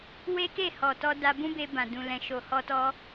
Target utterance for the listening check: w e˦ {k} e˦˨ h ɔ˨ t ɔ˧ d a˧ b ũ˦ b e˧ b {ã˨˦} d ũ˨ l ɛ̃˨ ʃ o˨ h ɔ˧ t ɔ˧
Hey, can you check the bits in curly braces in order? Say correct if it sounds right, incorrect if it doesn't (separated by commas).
correct, incorrect